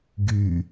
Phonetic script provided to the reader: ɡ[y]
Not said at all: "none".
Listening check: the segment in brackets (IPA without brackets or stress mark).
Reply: y